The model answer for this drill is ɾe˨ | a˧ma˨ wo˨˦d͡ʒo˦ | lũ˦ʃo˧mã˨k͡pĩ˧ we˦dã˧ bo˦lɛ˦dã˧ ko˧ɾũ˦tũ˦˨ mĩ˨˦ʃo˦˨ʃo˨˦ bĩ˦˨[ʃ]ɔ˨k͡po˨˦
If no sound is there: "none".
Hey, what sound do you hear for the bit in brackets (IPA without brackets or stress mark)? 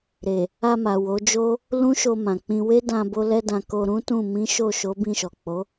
ʃ